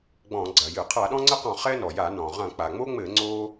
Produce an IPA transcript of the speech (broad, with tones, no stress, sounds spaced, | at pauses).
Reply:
ɡ͡b ɔ̃˧˩˧ ɡ͡ǀ ɐ˩ j ɨ˧˩˧ qʰ a˧˩˧ ɗ ɔ̃˦ ŋ͡ǀ ɘ˦ q ɔ̃˧˩˧ χ ɛ˦ n ɔ˩ j a˧˩˧ n ɔ̃˩ ʁ ɐ̃˧˩˧ k͡p a˩ ŋ͡m o˦ ŋ͡m ɘ˧˩˧ ŋ͡ǀ o˦